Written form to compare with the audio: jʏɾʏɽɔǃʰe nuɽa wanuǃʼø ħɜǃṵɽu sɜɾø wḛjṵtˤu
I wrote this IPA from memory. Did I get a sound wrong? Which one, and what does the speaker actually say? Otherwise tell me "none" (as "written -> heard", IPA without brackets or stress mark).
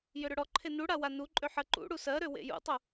none